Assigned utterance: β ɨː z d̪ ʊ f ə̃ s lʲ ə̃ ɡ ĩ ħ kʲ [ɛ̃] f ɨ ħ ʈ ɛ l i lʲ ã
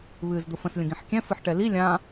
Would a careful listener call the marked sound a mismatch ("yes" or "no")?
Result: no